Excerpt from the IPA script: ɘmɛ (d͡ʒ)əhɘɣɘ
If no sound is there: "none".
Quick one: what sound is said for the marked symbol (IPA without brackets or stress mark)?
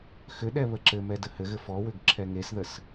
d